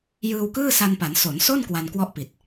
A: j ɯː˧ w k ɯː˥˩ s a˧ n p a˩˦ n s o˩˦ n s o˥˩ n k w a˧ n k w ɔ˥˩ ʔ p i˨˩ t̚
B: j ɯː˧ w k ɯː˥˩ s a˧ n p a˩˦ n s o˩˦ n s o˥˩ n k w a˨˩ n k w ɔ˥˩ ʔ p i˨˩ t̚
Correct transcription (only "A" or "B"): A